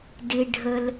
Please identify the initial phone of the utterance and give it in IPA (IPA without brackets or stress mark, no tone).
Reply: d